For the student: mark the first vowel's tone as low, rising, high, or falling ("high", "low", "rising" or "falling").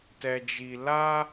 low